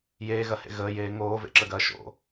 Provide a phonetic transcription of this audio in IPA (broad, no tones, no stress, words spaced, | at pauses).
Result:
jeːɣɐhḛ ɣəːjeː ŋoːvḛǁəɡɐː ʃo̰